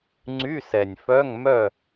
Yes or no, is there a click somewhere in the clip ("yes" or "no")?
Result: yes